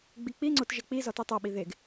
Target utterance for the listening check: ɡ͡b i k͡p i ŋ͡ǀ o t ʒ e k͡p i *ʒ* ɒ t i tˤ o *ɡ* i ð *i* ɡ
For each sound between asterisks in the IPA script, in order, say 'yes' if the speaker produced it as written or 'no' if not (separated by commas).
no, no, no